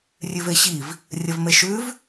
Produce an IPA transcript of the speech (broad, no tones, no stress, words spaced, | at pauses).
rʲʉveɕiv | rʲɐvmeʃʉv